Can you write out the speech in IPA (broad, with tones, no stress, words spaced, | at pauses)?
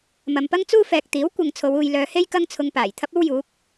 mɐ˨mpɐ˥ŋt͡suː˥fɛː˨k̚ t̪iː˨˥w kʷɐ˨ŋ t͡sʰo˨˧wuː˨jlœː˨˧he˥j kɐ˥ŋt͡sʰʊ˧ŋpaː˨˩j t̪ʰɐ˥p̚o˥wjuː˨˥k̚